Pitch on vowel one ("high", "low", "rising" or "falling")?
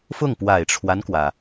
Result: falling